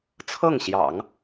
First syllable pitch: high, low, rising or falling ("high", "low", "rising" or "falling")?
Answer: falling